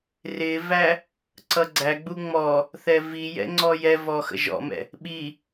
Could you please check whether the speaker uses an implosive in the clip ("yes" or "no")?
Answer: yes